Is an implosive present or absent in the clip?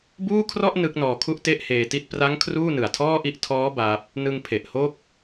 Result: absent